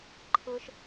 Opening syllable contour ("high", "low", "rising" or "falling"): high